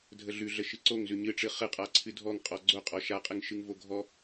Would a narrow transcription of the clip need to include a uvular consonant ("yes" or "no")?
yes